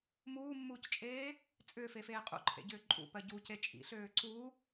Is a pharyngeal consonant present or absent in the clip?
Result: absent